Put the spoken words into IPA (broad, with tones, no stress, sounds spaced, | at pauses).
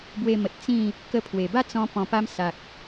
b w e˧ m ə˨ t̚ t͡s ĩ˥˧ | k ə˧ pʰ w e˨˩ b a˥˧ t͡s ɔ̃˧ p ɔ̃˨˩ p a˧ m s a˨ k̚